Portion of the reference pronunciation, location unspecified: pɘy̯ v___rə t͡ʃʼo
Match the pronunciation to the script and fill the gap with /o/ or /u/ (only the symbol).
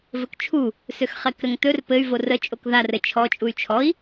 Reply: o